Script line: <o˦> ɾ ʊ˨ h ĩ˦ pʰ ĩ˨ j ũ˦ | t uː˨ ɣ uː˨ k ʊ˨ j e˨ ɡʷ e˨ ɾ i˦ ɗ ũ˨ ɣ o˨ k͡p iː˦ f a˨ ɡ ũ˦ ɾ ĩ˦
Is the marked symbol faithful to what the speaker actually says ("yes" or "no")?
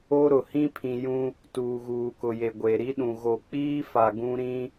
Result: yes